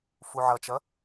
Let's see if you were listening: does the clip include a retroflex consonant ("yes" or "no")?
no